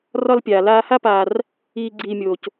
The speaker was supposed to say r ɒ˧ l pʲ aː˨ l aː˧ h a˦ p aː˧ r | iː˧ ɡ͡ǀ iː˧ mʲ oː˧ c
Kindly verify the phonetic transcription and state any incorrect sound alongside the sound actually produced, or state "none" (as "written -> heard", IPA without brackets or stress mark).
none